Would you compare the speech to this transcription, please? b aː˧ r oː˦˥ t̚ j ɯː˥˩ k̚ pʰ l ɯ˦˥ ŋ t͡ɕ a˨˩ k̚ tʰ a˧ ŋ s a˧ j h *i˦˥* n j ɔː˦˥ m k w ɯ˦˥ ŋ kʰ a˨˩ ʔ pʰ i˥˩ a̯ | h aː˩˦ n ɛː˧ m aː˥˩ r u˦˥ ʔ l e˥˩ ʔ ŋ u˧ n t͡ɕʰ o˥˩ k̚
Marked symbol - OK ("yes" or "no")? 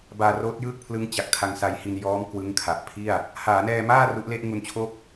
no